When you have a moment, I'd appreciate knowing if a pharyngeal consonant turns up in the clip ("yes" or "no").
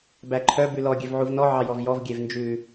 yes